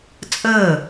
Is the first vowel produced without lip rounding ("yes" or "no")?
yes